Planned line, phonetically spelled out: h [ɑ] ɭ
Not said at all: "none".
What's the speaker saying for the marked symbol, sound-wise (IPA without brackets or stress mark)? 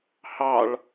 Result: ɑ